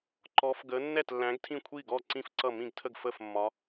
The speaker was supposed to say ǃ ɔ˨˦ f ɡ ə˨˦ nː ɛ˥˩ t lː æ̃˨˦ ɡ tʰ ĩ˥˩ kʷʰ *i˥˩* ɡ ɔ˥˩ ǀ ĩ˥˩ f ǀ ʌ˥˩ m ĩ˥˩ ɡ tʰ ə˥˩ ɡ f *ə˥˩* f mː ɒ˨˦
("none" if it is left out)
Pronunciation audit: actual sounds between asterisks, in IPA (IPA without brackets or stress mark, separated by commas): i˥˩, ə˥˩